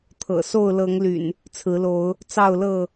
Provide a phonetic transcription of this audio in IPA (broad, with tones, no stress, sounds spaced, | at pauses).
t̪ʰ ɤ̰˨˩ s o˥˨ ʊ̯ l ɤ˨˦ ŋ l y̰˨˩ n | t͡sʰ ɹ̩˨˦ l o˨˦ ʊ̯ | t͡s ɑ˥˨ ʊ̯ l ɤ˥˨